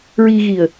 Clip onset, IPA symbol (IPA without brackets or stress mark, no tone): ɹ